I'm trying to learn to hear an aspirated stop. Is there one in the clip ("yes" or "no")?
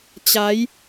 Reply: no